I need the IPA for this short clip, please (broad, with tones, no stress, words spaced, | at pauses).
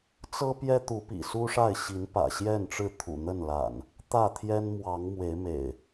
t͡sɤ˦pjɛ˦ t̪u˨˦pḭ˨˩ su˦ʂa˥˨ɪ̯ɕi˨˦npä̰˨˩ ɕjɛ˥˨nʈ͡ʂɻ̩˥˨t̪ʰṵ˨˩n̪ə˥˨n la̰˨˩n | t̪ä˥˨t̪ʰjɛ˦n mwɑ˨˦ŋmwe˨˦ɪ̯mḛ˨˩ɪ̯